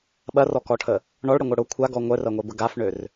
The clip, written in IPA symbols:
ɓ ɐ r ɔ k ɔ ʈʰ ə | ɳ ɔ ɭ ɽ ə ŋʷ œ ɽ ʊ kʷʰ a ɡ ɔ ŋʷ œ r ɐ ŋʷ e b ə ɡ a f ɳ ø r

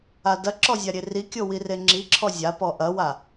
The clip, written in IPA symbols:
a d ɐ ǁ ɔ zʲ a ɾʲ e r i kʲ o w i r e ŋ͡ǁ i ǁʰ ɔ zʲ a p ɔ ʔ ɐ w a

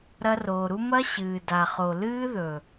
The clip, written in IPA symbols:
ɾ ɐ˦ r oː˨ ɾ u˦ m ɐ˦ ɕ ɨː˨ d a˨ χ o˨ l ɨː˦ ð ɵ˨

